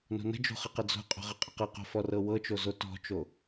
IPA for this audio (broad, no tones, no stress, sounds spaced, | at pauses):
n o̤ n ə̤ d͡ʒ o̤ χ ə q ə d͡z o̤ qʼ o̤ ʁ ə qʼ ə q ɤ q o̤ f ɔ r ɤ w ɤ t͡ʃ o z o t ɔ̤ t͡ʃ o